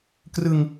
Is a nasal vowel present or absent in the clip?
absent